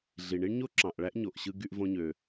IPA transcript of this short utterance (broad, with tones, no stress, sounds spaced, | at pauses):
ɮ i˩ ɳ i˥ ɳ ɲ o˥ ǁ ɑ̃˩ ʔ ɭ æ˥ ʔ ɲ o˩ ʔ ɕ ɯ˧ ɡ y˧ ʔ v õ˧ ɲ ø˩